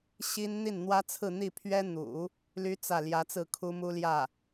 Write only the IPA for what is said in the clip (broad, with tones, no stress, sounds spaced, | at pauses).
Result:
ɕ i˥ n n̪ i˥˩ n n̪ w ä˥ t͡sʰ ɹ̩˥˧ n̪ i˥˩ pʰ ɥ ɛ˥ n̪ ṵ˨˩˦ | l y˥ t͡s ä˥˩ l j ä˧˥ t͡s ɹ̩˥˩ kʰ u˥ m u˥ l j ä˥˩